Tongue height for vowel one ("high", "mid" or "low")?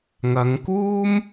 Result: low